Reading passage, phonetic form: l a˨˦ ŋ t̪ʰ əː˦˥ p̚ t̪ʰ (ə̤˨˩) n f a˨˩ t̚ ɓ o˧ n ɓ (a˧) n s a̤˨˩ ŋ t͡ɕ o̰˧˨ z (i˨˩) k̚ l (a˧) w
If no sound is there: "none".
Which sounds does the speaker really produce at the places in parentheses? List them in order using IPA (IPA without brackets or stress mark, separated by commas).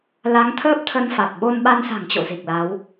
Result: ə˧, a˧, i˨˩, a˨˦